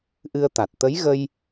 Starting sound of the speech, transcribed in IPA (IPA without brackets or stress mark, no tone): ʔ